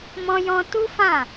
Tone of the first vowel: high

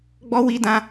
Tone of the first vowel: high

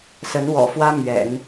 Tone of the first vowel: rising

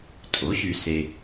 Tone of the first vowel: rising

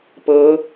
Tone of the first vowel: rising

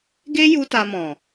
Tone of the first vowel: high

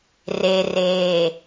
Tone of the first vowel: low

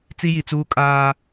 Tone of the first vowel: high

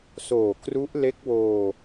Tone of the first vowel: low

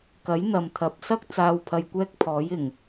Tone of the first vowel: rising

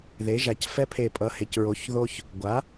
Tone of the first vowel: rising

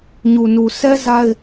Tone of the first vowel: low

